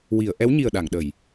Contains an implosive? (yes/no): yes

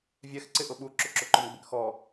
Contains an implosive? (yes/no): yes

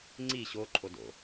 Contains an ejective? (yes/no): yes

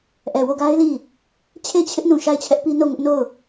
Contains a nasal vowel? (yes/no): yes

